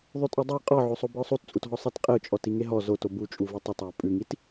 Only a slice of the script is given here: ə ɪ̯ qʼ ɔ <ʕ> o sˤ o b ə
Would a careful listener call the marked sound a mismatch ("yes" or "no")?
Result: no